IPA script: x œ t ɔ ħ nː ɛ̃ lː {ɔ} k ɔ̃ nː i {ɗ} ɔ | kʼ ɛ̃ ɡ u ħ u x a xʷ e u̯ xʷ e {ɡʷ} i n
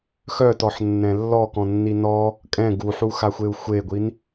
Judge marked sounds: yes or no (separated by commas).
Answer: yes, no, yes